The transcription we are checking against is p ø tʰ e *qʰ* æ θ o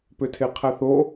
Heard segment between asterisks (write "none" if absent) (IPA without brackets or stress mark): qʰ